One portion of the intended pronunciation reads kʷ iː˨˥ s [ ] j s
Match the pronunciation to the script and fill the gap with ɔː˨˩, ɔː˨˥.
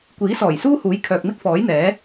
ɔː˨˩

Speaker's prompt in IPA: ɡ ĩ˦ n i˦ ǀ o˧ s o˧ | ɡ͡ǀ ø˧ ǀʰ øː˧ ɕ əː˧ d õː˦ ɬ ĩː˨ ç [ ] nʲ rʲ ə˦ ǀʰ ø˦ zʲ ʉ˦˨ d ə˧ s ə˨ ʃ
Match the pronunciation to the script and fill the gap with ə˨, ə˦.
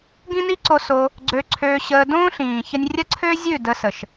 ə˦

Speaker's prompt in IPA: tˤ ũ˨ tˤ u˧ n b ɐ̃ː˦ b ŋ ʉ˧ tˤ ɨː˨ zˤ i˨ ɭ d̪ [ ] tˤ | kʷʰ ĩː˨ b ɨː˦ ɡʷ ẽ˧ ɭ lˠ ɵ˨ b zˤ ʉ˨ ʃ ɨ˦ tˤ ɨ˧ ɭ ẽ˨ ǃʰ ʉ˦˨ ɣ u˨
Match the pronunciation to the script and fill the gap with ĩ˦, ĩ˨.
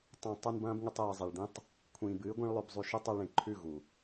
ĩ˦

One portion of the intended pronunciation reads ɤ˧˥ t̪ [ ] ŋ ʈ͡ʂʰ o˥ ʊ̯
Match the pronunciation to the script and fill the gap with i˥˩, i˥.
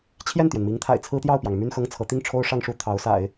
i˥˩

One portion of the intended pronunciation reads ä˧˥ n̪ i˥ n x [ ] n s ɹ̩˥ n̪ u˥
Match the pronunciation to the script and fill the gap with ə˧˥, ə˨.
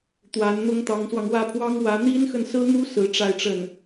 ə˨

